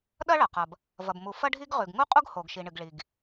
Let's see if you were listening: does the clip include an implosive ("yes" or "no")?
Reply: yes